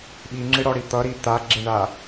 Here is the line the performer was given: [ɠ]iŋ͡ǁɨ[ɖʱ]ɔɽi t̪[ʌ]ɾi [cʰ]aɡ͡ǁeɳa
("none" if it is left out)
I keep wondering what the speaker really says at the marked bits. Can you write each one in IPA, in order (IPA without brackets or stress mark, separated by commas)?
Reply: ɓ, ɽ, ʌ, t̪